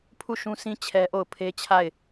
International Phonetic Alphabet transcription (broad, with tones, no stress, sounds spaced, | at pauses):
pʰ u˦˨ ʃ ũ˦ s ĩ˦ t͡ɕʰ ɛ˦ ʔ o˦˨ ʊ̯ pʰ e˦ t͡ɕʰ a˦˨ ɪ̯